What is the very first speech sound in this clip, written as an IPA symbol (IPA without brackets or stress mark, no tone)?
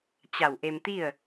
t͡ɕ